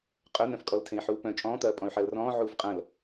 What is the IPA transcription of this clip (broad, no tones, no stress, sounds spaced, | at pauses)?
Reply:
qʼ œ n̪ œ̃ f kʼ ɔ l tʰ ẽ i̯ ħ uː p œ̃ t͡ʃʼ ɔ̃ː t̪ ɐː pʼ ɔ̃ y̯ ħ ɐː l r ɔ̃ː ʕ uː f qʼ ɐ̃ l